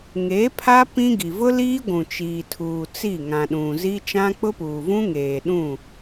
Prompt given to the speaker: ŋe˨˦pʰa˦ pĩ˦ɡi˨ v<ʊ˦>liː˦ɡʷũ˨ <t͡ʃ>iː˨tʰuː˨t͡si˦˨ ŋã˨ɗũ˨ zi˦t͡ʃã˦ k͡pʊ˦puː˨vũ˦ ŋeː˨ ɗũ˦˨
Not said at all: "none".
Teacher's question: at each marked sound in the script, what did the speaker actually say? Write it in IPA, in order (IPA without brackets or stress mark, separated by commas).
ʊ˦, t͡ʃ